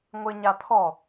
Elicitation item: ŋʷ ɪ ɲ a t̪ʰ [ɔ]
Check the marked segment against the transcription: correct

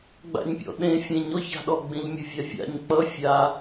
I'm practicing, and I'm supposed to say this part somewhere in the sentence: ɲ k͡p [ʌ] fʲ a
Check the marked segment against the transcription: correct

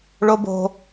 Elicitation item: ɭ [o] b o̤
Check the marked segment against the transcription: correct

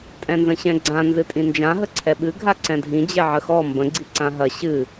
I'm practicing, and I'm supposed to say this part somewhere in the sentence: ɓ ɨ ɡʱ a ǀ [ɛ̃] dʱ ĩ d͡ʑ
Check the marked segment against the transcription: correct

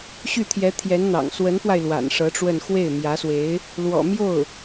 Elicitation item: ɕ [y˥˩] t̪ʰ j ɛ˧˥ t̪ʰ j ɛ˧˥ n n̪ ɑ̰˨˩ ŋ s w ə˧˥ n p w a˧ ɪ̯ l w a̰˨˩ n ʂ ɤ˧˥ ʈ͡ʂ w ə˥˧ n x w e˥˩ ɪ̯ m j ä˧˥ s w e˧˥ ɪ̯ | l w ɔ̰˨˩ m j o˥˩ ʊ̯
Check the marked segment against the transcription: correct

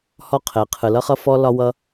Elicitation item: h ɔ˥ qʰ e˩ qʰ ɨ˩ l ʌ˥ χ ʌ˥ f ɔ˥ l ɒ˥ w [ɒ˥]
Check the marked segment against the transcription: incorrect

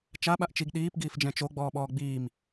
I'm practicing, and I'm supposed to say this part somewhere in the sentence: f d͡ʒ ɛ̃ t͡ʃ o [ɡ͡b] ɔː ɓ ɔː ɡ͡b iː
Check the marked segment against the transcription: correct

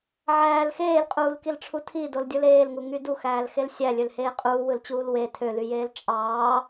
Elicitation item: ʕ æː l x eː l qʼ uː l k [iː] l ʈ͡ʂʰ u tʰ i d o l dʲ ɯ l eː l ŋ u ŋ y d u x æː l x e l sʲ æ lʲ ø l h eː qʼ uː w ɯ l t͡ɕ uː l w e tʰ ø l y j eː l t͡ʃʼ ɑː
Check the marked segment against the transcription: incorrect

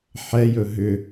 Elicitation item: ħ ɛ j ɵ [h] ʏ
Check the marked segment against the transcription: incorrect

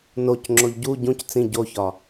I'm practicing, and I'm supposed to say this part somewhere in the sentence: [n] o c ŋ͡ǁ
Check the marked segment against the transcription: correct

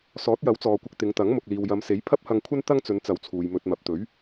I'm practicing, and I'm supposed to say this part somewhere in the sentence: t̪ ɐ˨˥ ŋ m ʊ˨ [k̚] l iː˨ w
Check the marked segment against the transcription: correct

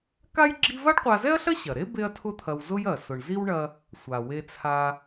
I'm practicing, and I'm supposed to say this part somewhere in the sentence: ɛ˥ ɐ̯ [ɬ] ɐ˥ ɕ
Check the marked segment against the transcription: correct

